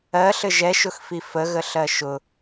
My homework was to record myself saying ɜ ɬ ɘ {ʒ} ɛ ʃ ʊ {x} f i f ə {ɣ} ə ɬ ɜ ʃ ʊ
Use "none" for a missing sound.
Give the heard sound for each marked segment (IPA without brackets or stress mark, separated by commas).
ʒ, x, ɣ